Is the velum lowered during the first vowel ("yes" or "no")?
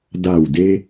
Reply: no